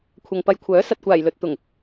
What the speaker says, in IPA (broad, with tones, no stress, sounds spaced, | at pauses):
kʷʰ ɐ˨ ŋ p ɐ˧ j kʷʰ œː˨˥ s ɐ˨ t̚ kʷ aː˨˩ j l ɵ˨ t̚ t̪ ʊ˨˩ ŋ